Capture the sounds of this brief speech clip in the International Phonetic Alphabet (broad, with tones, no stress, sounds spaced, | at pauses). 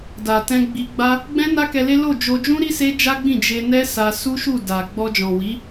d a˨ t ɛ̃˧ ɡ͡b i˧ ɡ͡b a˦ | ɡ͡b ɛ̃˦ n a˦ k ɛ˧ l e˦ l o˦˨ d͡ʒ o˧ d͡ʒ ũ˦ ɾ i˦ s e˦ d͡ʒ a˦ ɡ͡b ĩ˦˨ d͡ʒ e˧ n ɛ˦ s a˧ s u˦ ʃ u˦˨ d a˨ ɡ͡b ɔ˧ d͡ʒ ɔ̃˨ w i˨˦